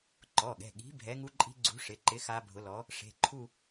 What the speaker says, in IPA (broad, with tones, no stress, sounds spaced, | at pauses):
ǃ ɔ˩˧˩ ɠ ɛ̤˩˧˩ ɠ i̤˨˥ bʱ ɛ˨˥ ŋ u˦˥ ǃʼ i̤˦˥ ɡ͡ǀ ṳ˨˥ ʂ ɪ˩˧˩ ǃ ɪ˨˥ x a˦˥ bʱ ʊ˨˥ l ɔ˨˥ | ʂ e̤˩˧˩ ǃʰ u˥˧